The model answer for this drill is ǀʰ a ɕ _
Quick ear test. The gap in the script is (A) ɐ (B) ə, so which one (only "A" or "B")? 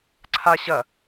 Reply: A